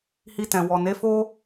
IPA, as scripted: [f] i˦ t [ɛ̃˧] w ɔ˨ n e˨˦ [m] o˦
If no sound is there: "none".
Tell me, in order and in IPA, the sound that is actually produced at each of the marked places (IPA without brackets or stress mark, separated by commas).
h, ɛ̃˧, f